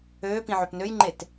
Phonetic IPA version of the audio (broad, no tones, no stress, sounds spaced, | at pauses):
øː p ĩ ʕ ø p n ø j ŋ͡ǃ e t